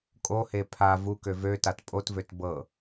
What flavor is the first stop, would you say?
ejective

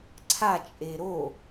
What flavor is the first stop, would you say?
click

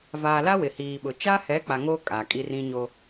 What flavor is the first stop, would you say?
implosive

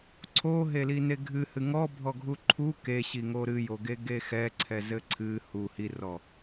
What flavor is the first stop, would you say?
click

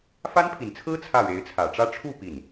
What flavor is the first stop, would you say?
aspirated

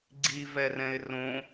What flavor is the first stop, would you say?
click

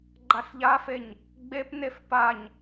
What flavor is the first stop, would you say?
click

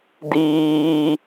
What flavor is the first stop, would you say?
plain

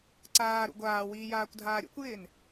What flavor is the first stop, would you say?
click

